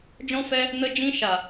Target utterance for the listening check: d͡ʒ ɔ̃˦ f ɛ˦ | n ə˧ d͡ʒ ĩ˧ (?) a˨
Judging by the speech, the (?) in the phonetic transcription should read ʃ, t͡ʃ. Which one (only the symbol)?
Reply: ʃ